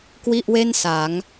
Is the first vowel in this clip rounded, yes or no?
no